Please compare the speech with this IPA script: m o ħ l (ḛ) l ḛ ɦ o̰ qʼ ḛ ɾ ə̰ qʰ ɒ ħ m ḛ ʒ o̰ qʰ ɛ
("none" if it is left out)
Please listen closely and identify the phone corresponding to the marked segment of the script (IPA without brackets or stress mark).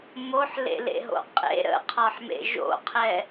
ḛ